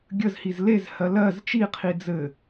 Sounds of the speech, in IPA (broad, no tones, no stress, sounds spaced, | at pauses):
ɡʲ ə z h i z l e z h ɜ l ɜ z t͡ʃ i qʰ i d͡z ɘ